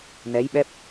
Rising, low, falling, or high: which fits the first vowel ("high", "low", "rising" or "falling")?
rising